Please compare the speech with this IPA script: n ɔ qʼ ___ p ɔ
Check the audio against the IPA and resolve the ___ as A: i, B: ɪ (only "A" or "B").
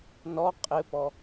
B